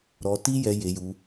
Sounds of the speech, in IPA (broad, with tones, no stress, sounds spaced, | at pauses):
ɾ ɔ˧ t i˦ j ɛ˧ j e˧ j u˧